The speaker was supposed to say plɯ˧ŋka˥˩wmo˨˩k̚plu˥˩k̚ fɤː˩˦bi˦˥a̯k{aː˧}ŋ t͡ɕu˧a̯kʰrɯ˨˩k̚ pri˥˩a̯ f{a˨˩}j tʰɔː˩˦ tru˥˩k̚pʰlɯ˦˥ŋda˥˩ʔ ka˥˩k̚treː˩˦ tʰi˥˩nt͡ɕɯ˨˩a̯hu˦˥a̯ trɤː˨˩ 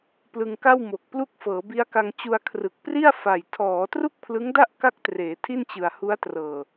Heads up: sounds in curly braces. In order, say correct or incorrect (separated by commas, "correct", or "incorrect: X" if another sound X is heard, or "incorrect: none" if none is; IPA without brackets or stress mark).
incorrect: a˧, correct